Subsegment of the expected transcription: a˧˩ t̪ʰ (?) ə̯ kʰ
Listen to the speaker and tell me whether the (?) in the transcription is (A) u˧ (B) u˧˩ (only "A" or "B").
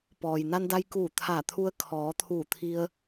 A